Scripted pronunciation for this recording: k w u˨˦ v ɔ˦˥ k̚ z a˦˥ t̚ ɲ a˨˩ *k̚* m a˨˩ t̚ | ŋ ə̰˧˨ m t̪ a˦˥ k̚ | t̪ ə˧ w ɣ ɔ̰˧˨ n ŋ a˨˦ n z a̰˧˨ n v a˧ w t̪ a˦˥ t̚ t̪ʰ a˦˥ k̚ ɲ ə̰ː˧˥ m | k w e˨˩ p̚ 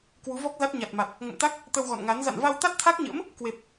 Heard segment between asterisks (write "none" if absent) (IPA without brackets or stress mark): t̚